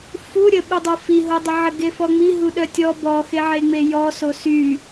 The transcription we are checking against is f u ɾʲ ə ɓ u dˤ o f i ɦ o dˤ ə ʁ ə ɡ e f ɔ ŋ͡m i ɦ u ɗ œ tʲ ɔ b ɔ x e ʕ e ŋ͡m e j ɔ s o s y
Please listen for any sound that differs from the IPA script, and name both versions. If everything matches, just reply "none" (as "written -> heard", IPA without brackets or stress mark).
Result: ʁ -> ʕ